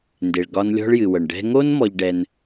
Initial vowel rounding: unrounded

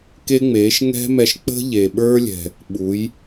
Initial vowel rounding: unrounded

